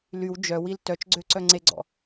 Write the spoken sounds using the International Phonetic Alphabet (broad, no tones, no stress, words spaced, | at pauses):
lyw d͡ʒœwil tœt͡ʃɡ͡ǀøǀœ ŋ͡ǀeɡ͡ǀɔ̰